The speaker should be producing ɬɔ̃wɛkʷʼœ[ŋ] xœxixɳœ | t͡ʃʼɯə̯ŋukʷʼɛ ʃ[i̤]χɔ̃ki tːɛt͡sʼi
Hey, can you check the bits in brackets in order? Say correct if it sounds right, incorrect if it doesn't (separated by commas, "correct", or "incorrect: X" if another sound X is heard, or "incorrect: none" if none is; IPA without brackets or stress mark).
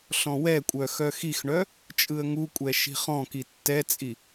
incorrect: none, correct